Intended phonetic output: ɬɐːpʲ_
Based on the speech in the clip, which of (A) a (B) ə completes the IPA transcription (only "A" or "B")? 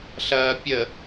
B